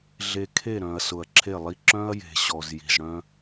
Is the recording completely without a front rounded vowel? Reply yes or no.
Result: no